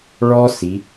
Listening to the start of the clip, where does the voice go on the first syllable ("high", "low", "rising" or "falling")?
high